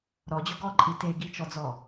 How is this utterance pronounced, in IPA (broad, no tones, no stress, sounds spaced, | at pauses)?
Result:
ɾ ɔ d͡ʑ o ɡ ɔ ǃʼ i t e ɡ i t͡ʃ ɔ d͡z ɔ